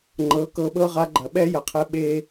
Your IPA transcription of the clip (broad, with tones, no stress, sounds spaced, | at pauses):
ŋ͡ǃ ɤ˩˧ k ɤ˧ ɓ ɤ˥ ʁ a˧˥ ɡ͡ǃ ɐ˩ ɓ ɛ˥ j ɐ˩ qʰ ɛ˧ ɓ e˧